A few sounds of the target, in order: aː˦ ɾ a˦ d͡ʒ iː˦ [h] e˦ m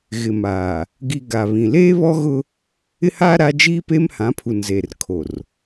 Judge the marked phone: incorrect: p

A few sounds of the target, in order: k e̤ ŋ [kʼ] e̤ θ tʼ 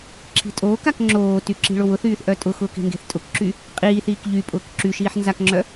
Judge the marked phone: incorrect: ɡ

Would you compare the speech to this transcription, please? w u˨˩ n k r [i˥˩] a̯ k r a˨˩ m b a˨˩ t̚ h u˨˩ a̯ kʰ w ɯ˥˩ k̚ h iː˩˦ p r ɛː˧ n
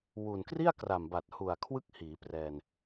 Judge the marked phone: correct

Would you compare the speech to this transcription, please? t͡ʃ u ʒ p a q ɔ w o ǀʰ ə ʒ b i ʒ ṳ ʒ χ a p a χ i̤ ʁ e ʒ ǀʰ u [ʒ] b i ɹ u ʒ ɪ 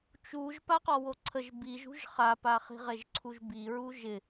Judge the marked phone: correct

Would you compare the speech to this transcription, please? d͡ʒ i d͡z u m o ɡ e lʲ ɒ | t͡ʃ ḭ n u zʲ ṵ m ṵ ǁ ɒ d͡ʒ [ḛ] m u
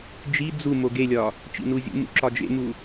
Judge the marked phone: correct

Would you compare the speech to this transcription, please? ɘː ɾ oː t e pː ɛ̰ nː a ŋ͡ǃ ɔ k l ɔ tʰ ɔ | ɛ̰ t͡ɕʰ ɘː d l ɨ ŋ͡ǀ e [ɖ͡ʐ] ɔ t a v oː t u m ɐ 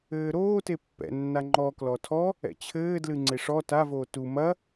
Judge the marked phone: incorrect: ʂ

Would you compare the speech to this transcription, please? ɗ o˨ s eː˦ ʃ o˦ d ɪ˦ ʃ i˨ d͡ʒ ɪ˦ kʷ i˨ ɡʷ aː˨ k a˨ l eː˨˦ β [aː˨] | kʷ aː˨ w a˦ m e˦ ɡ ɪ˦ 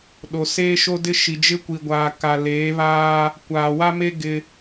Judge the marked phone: incorrect: aː˦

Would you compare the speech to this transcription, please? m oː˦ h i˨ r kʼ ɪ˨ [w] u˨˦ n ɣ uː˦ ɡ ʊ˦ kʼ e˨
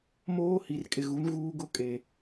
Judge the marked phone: incorrect: ɣ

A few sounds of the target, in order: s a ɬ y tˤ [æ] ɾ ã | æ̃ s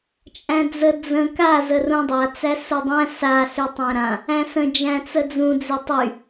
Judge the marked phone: incorrect: æ̃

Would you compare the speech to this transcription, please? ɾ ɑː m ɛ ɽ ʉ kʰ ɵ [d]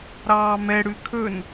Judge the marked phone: incorrect: n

